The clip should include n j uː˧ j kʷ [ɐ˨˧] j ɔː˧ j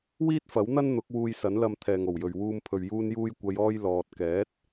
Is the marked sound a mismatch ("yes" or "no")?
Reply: no